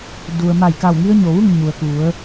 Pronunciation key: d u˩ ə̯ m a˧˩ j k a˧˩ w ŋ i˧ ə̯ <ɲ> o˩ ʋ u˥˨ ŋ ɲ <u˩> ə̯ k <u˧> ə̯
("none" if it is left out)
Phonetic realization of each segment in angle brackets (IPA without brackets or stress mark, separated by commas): ɲ, u˩, u˩˧